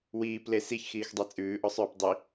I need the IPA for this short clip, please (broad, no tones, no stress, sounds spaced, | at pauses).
w iː p l e s i ç x iː x dˤ e t͡sʼ ʉː ʔ ɔ sˤ œː p dˤ i